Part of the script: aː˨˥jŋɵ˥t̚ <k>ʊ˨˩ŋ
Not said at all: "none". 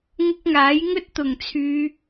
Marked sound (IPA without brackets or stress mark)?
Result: t̪